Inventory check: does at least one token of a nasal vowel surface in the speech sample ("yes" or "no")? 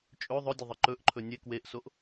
no